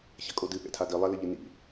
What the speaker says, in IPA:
çɐkʼodɨ ɠɛ̰tʰadi lˠalɘʎɨnḭ

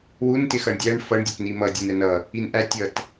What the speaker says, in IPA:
wun tɪxʌɳdʲæɳ fʌɳ dʲʌtnimʌ dʲʌnɛnʌ | inʔæ tʲʌt

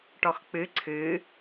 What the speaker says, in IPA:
ʈɔxk͡pɨ ǀʰɨ

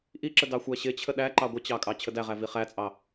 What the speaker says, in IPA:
ʔiǁə dɑxʷæɕɪt͡ɕʰə ɗæǃɑ ɡʷət͡ɕɑ kʼɑt͡ɕʰədæʁæ viχæt͡sʼɑ

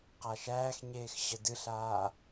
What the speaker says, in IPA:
qaʃæːxɲeːx ɕədɨɬaː

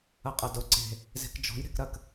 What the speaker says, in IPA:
ɐqʼɐdʊ ǀe̤ | ze̤kd͡ʒɔ̤j ɾe̤kɾɐk

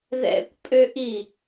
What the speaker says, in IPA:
ðɛ̰kʷpʼøʔi

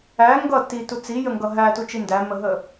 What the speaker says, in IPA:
æ ŋɡʌ titu t͡sijəŋɡʌ ɦætut͡ʃi ndæməɦə

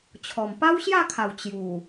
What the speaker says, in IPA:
t͡ɕʰɔ˨˩m pa˦wɕja˥˧kʰa˨˩w t͡ɕju˨˩

